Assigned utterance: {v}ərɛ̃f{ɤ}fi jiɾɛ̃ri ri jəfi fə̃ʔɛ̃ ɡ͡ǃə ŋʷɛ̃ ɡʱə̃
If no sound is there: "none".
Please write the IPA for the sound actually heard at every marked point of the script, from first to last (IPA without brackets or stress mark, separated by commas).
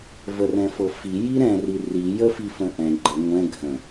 v, ɤ